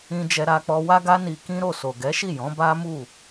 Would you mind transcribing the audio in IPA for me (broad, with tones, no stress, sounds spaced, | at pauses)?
ĩ˧ d͡ʒ ɛ˧ ɾ a˧ k͡p ɔ˧ w a˦ ɡ a˦ n i˧ k ĩ˦ ɾ o˦˨ s o˨ ɡ ɛ˨˦ ʃ i˦˨ j ɔ̃˨˦ b a˦ m u˦˨